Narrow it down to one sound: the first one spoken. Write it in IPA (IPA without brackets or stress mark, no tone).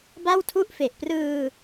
b